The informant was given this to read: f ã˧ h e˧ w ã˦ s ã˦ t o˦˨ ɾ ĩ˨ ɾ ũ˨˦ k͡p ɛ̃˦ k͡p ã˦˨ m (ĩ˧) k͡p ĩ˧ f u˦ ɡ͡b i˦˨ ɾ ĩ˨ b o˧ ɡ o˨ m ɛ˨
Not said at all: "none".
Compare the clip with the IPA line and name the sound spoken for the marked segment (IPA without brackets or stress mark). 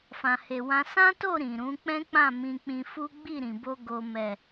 ĩ˧